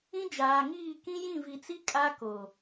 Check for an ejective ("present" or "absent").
present